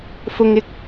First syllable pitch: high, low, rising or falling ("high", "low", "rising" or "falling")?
low